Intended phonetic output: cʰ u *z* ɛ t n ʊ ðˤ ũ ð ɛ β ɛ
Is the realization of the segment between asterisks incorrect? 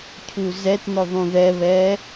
no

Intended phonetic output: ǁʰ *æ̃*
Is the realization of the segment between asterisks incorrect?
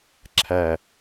yes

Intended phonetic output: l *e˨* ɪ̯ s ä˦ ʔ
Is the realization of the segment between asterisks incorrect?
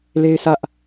yes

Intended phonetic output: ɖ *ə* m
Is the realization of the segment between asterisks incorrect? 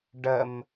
no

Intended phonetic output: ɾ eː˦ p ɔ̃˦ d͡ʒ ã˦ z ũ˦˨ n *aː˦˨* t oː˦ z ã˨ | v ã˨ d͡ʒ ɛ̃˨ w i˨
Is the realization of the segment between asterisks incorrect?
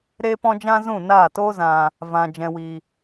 no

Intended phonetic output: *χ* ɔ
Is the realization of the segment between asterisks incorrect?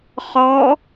no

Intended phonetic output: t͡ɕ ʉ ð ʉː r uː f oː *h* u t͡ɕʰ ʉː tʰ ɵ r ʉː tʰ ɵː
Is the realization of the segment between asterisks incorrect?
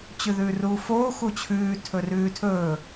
yes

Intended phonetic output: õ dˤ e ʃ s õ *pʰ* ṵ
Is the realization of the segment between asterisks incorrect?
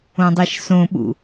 yes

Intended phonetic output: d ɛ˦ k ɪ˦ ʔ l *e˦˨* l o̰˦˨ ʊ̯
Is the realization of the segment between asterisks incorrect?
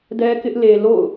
yes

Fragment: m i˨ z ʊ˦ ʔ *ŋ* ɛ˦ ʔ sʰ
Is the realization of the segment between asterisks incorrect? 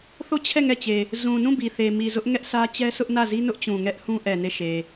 no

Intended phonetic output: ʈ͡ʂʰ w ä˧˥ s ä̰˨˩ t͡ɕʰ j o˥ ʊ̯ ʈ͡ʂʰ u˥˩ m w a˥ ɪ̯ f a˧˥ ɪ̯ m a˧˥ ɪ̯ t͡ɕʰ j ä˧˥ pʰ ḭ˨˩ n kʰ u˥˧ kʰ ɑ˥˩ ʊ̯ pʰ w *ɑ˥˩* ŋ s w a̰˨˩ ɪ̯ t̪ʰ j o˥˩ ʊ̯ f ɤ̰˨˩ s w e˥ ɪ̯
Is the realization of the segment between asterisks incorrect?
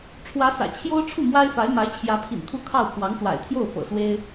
yes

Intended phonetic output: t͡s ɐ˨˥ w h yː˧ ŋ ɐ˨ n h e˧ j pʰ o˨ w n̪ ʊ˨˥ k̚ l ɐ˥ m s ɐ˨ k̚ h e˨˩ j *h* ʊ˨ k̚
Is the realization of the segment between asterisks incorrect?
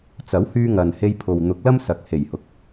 no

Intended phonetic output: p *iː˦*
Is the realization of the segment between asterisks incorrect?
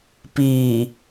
yes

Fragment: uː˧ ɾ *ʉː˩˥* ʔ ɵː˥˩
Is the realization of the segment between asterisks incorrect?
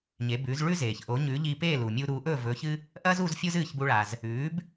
yes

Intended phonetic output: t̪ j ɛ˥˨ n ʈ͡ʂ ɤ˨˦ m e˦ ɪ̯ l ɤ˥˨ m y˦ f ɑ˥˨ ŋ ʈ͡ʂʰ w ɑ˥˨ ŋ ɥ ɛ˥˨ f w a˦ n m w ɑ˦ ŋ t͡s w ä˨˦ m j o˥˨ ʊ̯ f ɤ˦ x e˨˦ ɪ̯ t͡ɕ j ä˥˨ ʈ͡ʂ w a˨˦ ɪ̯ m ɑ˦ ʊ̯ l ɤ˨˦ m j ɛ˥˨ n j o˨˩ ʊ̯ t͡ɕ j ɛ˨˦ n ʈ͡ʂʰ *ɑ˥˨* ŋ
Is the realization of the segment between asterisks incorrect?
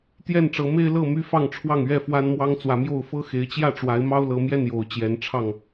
no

